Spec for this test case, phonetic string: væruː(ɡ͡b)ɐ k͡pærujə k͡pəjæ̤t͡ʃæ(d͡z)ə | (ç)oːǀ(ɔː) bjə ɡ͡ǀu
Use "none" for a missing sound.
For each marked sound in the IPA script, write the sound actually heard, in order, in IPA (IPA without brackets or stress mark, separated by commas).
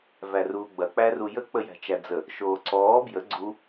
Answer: ɡ͡b, d͡z, ʃ, ɔː